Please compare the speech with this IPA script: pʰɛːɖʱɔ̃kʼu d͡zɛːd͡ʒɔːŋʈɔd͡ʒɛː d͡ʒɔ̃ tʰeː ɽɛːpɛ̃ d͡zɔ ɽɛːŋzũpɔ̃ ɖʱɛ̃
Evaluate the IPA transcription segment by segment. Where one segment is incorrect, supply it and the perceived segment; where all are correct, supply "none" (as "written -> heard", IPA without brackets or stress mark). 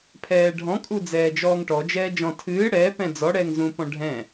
eː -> ɨː